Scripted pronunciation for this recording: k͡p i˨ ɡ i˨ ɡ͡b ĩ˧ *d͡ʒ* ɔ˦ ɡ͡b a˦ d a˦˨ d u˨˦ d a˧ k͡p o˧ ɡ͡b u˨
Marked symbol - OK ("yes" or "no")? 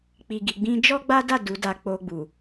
yes